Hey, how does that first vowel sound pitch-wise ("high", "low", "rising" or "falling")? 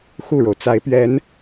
falling